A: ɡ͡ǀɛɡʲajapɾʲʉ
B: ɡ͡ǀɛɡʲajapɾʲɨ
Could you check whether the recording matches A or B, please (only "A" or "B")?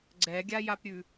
A